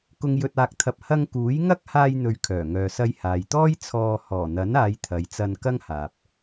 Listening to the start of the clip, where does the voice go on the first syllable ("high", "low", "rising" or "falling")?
low